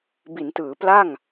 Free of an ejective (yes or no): yes